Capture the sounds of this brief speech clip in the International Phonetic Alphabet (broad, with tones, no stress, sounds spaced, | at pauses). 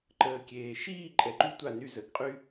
ǃ əː˧ kʲ eː˨ ʃ iː˦˨ ǃʼ ɛ˧ ǃ y˦ tʷ a˦˨ n y˦˨ z ə˨˦ ɡ qʼ y˦